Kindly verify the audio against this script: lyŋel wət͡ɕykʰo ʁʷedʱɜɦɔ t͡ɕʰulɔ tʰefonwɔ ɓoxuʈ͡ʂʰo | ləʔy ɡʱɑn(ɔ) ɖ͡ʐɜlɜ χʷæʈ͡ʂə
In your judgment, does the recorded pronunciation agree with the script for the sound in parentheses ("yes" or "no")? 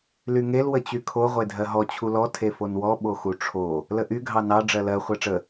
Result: no